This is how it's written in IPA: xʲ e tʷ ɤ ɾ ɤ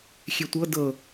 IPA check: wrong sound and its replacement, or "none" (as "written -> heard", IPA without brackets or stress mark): ɾ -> d